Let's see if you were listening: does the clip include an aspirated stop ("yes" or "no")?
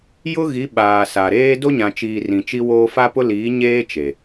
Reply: no